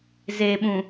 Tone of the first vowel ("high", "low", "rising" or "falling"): low